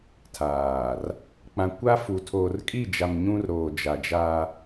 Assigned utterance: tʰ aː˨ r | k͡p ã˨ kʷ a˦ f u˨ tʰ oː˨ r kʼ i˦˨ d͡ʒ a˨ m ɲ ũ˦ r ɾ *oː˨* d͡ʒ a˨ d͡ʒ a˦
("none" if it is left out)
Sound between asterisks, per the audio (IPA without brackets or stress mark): oː˨